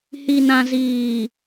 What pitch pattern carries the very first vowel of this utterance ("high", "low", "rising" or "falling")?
low